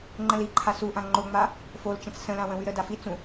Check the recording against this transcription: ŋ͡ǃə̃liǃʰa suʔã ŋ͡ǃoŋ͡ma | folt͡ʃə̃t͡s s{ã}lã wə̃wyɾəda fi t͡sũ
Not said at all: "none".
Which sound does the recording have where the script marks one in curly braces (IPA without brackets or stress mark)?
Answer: ə̃